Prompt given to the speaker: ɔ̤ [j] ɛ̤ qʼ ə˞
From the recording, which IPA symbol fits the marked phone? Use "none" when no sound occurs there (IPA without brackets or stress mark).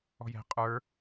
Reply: j